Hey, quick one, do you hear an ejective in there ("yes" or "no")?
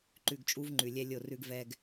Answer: yes